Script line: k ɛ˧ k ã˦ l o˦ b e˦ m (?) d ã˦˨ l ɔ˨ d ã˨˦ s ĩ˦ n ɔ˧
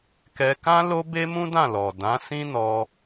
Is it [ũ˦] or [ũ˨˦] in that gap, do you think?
ũ˦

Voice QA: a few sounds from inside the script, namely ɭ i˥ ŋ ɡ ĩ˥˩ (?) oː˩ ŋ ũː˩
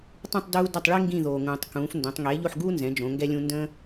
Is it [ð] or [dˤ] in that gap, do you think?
ð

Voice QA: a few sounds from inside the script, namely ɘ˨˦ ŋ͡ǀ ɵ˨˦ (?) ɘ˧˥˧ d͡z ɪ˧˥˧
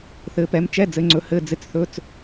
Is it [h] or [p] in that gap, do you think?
h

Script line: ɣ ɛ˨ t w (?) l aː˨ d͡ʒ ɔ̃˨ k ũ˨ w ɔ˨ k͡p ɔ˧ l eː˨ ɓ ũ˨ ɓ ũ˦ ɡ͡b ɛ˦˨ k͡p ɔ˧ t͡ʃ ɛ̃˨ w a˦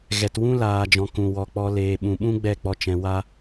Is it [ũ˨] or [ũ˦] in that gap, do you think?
ũ˦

